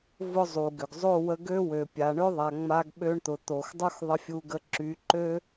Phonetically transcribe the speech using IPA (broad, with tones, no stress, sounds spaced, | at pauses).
v ʊ˦ zˤ u˨ ɡ ʏ˨ ɡ zˤ o˦˨ w ə˧ ɡ ø˦ w ø˨ pʲ a˨ ɳ ʏ˦ ðˤ a˨ ŋ͡m a˧ ɡ ɓ ø˧ ɳ t̪ ʊ˨ t̪ o˨ x dˤ u˦ x ðˤ ə˧ fʲ u˧ ɡ ə˧ ǁ y˨˦ ǃ ø˦